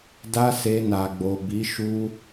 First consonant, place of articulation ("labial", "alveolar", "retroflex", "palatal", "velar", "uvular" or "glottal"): alveolar